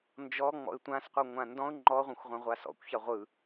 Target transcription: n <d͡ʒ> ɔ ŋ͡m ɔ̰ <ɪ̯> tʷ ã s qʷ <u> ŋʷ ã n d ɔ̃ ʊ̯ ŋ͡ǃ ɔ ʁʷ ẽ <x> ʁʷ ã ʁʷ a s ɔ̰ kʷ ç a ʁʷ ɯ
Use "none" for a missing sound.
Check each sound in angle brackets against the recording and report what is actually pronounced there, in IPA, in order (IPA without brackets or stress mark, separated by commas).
d͡ʒ, ɪ̯, ɯ, xʷ